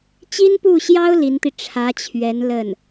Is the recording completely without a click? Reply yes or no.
yes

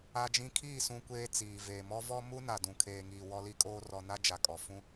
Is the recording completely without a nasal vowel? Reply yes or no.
no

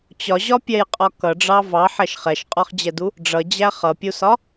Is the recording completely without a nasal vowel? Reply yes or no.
yes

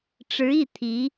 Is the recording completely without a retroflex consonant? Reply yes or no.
no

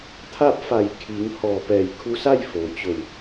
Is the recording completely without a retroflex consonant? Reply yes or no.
yes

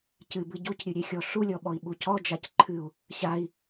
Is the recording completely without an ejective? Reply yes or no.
yes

